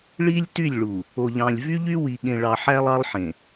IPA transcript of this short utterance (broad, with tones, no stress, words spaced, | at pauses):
ɭi˦lʲ ty˦˨lʲɭu˨ | o˨ʎɑ̃˨lʲvy˦ʎy˦ wi˨ɠẽ˨ɭɑ˨ ħæ˦lˠɑ˦lˠħẽ˨